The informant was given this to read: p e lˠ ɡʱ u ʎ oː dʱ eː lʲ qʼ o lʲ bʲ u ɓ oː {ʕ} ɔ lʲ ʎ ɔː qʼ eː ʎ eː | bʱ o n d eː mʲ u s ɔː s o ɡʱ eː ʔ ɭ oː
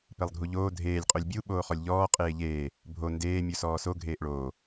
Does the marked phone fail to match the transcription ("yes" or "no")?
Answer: yes